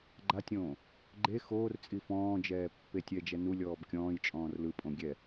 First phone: ɡ͡ǃ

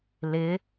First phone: l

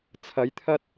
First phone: t͡sʰ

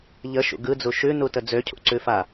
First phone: ʎ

